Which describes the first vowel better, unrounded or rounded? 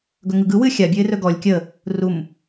rounded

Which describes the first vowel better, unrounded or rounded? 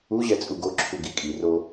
rounded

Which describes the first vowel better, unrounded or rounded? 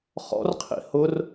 rounded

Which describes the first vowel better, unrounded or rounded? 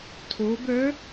rounded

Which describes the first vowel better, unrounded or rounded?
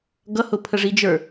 unrounded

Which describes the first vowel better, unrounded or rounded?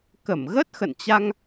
unrounded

